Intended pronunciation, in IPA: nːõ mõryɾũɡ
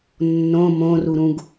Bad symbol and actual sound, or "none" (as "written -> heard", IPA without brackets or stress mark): y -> u